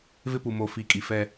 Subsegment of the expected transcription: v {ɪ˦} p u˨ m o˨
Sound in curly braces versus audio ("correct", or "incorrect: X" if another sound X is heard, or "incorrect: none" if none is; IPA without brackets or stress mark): correct